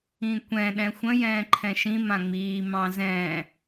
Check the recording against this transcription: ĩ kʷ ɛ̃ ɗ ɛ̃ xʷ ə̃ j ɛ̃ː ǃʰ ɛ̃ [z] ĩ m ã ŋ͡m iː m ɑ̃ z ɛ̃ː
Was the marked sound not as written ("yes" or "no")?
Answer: yes